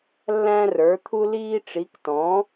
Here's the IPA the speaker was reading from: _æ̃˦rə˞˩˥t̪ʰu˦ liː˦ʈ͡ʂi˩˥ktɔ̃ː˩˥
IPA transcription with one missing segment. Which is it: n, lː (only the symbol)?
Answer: lː